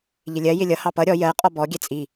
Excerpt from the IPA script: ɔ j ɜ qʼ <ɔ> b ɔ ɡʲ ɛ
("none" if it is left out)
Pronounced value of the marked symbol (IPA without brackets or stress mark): ɔ